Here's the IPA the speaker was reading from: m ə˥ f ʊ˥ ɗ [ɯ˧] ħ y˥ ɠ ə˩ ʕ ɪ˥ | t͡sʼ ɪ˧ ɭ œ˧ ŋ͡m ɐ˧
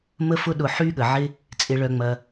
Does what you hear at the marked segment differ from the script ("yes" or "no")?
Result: yes